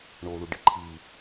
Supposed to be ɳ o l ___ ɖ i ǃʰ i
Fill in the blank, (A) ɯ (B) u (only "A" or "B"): B